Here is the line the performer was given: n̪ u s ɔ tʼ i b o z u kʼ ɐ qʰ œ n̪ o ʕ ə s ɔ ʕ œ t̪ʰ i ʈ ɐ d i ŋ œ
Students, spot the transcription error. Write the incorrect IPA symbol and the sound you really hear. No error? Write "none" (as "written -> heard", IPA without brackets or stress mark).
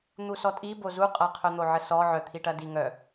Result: kʼ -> qʼ